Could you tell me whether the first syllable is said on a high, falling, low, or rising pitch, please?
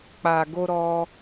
low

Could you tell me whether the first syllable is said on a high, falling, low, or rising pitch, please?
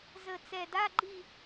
low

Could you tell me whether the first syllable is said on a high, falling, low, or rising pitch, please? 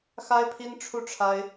high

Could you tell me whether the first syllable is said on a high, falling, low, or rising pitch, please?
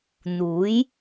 rising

